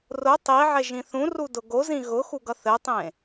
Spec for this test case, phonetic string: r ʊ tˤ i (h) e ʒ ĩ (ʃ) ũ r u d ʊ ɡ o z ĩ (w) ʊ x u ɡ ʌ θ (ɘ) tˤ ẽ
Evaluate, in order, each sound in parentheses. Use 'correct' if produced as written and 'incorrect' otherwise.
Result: incorrect: ʕ, incorrect: θ, incorrect: ɣ, correct

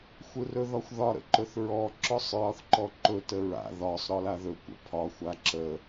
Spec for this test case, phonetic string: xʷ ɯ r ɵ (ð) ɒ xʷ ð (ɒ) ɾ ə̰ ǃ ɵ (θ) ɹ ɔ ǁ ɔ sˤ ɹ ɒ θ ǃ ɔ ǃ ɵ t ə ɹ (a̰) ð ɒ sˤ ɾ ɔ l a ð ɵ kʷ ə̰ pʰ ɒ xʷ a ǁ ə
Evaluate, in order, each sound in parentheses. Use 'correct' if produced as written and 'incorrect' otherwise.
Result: correct, correct, correct, correct

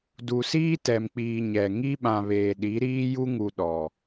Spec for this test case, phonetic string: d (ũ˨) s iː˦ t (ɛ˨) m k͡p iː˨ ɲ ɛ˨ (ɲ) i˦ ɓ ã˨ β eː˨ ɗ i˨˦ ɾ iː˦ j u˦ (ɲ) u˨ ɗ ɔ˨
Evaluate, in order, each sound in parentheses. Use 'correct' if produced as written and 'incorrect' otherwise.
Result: incorrect: u˨, correct, incorrect: ŋ, incorrect: ŋ

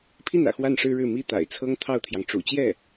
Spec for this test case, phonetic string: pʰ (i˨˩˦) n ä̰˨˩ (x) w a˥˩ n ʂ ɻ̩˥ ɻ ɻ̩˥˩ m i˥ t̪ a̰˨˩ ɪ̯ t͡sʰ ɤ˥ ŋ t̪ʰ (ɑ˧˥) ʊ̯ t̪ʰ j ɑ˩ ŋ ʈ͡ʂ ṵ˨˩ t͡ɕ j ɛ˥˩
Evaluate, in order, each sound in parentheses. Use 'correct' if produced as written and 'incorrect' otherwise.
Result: incorrect: i˥˩, correct, incorrect: ɑ˥˩

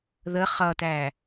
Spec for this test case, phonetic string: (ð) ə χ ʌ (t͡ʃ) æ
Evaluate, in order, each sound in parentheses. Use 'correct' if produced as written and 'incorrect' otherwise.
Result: correct, incorrect: t

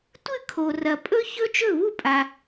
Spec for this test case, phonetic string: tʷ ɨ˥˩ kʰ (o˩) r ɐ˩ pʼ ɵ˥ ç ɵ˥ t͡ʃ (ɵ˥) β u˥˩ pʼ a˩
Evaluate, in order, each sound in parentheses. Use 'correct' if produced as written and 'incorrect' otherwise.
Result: correct, incorrect: ɵ˥˩

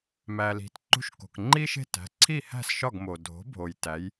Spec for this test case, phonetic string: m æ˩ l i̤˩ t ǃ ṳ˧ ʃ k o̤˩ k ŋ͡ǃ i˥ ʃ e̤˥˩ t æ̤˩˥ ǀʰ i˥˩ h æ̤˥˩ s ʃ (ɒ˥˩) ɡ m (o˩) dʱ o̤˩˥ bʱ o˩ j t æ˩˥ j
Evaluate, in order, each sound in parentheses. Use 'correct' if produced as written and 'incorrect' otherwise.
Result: correct, correct

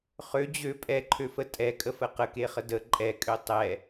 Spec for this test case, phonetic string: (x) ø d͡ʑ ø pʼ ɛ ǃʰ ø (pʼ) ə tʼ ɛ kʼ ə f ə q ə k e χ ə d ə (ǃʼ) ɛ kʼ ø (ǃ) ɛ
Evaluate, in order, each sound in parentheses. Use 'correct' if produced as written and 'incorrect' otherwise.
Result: incorrect: χ, incorrect: f, correct, incorrect: tˤ

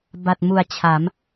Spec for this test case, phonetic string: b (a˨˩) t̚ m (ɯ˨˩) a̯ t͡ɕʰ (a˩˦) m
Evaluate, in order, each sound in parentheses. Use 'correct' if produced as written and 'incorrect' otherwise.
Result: correct, incorrect: u˨˩, correct

